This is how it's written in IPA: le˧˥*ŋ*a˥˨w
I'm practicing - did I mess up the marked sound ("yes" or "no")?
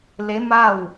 yes